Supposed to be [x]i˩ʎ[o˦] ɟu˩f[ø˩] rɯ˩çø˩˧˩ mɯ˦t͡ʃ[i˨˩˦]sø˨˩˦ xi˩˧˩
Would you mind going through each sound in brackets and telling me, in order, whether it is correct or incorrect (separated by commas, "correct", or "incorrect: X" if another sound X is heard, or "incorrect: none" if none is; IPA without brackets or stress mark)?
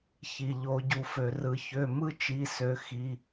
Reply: incorrect: ç, incorrect: o˨˩˦, correct, incorrect: i˩˧˩